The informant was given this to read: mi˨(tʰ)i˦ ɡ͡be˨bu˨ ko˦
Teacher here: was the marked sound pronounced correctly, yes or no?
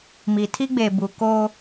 yes